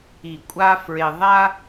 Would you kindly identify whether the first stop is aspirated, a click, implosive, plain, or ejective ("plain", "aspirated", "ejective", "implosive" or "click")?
ejective